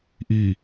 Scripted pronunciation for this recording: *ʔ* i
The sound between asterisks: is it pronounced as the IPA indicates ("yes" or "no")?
yes